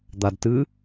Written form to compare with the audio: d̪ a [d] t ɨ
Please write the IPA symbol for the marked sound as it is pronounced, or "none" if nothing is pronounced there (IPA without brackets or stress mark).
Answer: d